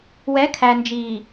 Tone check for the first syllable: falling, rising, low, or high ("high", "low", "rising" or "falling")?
rising